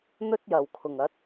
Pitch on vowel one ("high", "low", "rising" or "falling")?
high